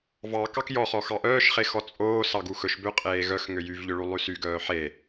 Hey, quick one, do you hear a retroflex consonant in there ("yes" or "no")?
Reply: yes